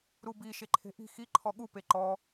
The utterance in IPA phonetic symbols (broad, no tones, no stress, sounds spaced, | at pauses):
ɾ u b i ʃ e ǃʰ e̤ ʔ i̤ x i ǃʰ ɔ ɠ u p e ǃ ɔ